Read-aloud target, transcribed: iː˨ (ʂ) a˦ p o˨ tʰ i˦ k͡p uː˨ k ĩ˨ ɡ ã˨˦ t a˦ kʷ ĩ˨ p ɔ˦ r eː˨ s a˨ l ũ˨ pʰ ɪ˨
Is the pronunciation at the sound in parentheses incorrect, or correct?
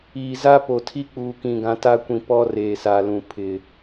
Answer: incorrect: z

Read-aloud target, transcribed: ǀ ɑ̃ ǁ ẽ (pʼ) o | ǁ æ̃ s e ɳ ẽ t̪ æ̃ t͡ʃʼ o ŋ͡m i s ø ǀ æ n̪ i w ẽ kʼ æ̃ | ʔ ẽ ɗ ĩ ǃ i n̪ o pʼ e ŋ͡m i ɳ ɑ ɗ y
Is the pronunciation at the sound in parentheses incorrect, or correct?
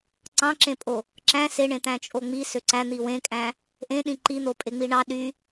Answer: correct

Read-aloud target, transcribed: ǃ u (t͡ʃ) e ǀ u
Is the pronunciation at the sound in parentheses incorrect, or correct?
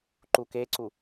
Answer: incorrect: k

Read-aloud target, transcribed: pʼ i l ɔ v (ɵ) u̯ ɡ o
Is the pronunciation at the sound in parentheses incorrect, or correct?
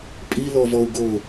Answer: incorrect: ɔ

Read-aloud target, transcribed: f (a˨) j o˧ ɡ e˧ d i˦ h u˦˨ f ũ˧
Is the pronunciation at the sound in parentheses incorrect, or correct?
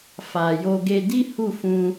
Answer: correct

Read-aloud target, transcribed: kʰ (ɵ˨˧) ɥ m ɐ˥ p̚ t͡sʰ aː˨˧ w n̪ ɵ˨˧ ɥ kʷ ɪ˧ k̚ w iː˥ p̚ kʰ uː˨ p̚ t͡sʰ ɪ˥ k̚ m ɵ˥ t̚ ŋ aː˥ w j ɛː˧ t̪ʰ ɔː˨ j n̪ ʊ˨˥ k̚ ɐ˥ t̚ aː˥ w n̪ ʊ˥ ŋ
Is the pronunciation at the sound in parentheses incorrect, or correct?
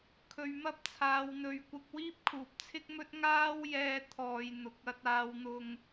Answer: incorrect: ɵ˧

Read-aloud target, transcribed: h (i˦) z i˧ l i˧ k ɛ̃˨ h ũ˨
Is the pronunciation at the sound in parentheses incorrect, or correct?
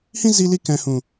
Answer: incorrect: ĩ˦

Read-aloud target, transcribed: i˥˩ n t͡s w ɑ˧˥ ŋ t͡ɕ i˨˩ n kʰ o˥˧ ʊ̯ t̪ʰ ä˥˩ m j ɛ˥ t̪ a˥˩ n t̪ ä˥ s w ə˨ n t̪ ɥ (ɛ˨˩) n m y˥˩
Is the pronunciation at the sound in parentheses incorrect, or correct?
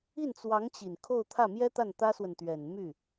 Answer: correct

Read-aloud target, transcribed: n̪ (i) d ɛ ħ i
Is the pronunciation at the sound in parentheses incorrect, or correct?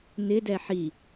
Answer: incorrect: ɪ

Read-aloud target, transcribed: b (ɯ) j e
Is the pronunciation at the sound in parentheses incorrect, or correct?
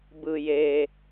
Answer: correct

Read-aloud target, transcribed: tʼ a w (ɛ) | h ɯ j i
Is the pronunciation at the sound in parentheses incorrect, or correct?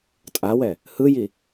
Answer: correct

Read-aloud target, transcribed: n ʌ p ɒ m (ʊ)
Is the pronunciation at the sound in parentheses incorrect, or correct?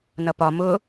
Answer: correct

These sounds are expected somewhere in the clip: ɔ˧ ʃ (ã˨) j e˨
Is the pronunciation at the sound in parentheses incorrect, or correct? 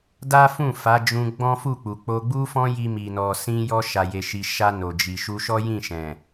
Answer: incorrect: a˨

